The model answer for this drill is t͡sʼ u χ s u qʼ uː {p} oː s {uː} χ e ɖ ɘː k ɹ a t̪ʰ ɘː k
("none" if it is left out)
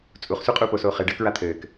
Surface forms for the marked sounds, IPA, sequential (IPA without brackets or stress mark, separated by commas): p, oː